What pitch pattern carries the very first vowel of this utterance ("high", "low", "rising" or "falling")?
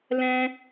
high